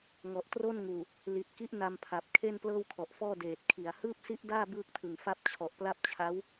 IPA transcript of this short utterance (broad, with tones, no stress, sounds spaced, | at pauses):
ŋ ɔ˨˩ ʔ t r o˥˩ n ŋ uː˨˩ | l i˨˩ t̚ k i˦˥ ʔ n a˧ m pʰ a˨˩ p̚ kʰ e˥˩ n p l ɤː˥˩ w kʰ ɔ˨˩ ʔ f ɔː˥˩ d eː˨˩ t̚ kʰ i˨˩ a̯ h ɯː˥˩ p̚ s i˦˥ ʔ d aː˥˩ b ɯː˥˩ k̚ tʰ ɯ˨˩ ŋ f a˥˩ p̚ t͡ɕʰ ɔ˨˩ ʔ p l a˥˩ p̚ t͡ɕʰ a˦˥ w